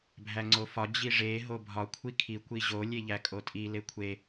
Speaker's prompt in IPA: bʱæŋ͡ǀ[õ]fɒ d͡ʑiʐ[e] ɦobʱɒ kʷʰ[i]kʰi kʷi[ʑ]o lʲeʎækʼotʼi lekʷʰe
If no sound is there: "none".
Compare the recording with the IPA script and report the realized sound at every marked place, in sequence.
o, e, i, ʑ

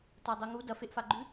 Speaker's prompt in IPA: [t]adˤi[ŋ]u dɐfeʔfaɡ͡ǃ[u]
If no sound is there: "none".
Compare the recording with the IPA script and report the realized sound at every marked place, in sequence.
t, ŋ, ʉ

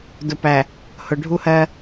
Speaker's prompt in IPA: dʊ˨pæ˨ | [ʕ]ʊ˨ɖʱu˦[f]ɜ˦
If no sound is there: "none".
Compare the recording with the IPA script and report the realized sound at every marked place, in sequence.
h, h

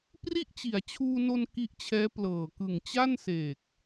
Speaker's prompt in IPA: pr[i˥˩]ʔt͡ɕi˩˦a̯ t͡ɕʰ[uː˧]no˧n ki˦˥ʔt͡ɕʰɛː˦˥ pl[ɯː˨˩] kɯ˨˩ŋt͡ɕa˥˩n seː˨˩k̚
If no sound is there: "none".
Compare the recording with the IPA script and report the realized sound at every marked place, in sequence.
i˥˩, uː˧, ɤː˨˩

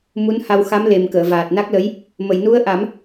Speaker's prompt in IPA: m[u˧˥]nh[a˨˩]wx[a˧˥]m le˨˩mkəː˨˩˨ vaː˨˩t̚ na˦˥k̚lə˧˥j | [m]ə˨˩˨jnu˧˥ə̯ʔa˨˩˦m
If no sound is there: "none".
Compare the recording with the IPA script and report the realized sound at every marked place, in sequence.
u˧˥, a˧, a˧˥, m

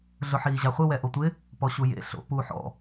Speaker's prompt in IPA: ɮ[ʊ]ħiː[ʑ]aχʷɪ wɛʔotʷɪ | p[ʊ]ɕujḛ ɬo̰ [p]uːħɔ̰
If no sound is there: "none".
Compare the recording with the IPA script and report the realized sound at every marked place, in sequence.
ʊ, ʑ, ɔ, p

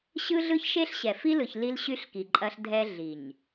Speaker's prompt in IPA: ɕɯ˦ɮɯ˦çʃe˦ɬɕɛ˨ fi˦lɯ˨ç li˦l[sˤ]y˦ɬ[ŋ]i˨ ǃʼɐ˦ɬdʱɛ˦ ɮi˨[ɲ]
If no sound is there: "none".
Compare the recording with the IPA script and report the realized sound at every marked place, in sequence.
ɕ, k, ɲ

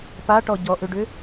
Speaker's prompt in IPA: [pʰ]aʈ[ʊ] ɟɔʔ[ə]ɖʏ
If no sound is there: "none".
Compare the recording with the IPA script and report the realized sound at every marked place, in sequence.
p, ɔ, ʏ

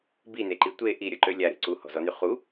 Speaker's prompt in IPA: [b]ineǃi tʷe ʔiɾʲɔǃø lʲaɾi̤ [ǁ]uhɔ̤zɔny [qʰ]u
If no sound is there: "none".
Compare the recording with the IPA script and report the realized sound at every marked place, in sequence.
b, ǀ, χ

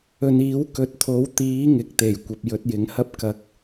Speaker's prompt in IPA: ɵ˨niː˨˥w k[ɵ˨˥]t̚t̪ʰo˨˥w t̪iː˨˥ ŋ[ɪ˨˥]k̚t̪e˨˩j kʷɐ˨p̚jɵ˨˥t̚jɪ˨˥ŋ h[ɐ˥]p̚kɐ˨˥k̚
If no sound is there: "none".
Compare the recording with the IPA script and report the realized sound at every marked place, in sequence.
ɵ˨˥, ɪ˨˥, ɐ˥

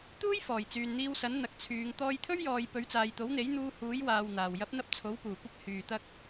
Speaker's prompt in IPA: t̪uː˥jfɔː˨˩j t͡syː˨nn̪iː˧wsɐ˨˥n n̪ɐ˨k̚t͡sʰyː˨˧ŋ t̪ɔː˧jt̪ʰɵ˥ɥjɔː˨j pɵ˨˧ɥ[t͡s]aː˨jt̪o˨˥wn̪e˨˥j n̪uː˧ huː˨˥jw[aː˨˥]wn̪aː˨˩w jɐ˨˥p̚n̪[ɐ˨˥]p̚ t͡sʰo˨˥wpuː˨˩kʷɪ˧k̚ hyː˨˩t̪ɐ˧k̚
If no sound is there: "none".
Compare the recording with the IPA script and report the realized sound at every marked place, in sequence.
t͡s, aː˨, ɐ˧

